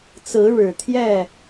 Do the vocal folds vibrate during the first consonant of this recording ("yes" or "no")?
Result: no